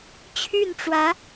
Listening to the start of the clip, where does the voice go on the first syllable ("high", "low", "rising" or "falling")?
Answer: falling